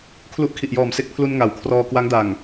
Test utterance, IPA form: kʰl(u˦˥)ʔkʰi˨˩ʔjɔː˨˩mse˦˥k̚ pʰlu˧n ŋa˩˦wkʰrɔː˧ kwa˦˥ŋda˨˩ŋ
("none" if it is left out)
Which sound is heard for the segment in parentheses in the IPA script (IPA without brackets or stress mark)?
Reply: u˦˥